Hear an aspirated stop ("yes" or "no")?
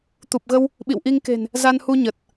no